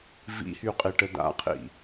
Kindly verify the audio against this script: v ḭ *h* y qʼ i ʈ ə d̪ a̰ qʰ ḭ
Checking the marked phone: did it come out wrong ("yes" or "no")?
no